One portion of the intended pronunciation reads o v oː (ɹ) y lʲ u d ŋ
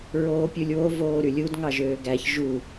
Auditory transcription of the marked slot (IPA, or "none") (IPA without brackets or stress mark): ɾ